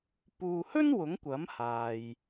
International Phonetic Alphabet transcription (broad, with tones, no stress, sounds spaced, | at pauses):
p uː˨ h ɵ˥ n w ʊ˨˥ ŋ kʷ ɐ˨˥ m h aː˨ j